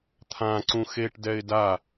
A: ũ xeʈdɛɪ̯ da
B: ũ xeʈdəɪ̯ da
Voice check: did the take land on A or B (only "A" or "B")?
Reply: A